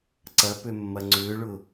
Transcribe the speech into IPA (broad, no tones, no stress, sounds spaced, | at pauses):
ǀ ɐ p ø mː ɐ ŋ͡ǀ ʏː ɭ ʊ